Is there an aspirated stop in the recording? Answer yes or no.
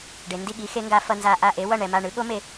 no